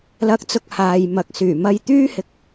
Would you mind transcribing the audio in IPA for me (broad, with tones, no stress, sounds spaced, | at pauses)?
l ɐ˨˥ k̚ t͡s ʊ˨ k̚ h aː˨ j m ɐ˨˥ k̚ s yː˨˩ m ɐ˧ j t̪ yː˥ h ɪ˧ k̚